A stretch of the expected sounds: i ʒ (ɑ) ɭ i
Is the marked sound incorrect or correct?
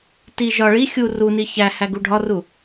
incorrect